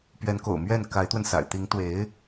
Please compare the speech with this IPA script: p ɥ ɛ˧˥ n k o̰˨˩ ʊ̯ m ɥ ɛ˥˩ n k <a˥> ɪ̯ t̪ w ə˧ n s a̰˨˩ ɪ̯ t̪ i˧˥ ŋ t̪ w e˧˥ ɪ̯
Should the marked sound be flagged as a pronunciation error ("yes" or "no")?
yes